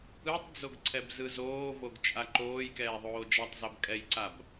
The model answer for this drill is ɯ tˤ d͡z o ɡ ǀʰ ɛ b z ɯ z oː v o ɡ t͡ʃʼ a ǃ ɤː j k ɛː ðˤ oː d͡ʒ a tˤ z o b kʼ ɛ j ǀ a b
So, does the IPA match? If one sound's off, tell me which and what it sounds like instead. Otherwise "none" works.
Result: ɤː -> oː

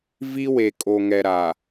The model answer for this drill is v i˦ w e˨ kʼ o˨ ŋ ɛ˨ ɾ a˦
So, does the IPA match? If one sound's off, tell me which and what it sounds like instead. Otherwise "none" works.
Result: a˦ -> a˨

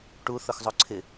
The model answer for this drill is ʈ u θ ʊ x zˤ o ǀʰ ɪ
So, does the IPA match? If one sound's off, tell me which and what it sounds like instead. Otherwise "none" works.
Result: none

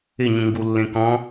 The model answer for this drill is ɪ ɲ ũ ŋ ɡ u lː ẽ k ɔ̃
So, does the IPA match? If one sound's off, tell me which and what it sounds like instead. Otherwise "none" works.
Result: none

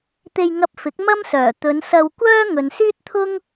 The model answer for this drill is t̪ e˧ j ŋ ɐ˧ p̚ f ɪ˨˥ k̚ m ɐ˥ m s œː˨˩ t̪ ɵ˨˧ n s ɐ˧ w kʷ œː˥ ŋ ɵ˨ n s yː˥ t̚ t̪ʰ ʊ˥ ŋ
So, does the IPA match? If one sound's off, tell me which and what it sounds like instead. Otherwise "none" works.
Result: none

